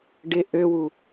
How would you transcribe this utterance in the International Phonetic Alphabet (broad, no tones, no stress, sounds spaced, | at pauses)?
ɖ ɪ ʔ ø w u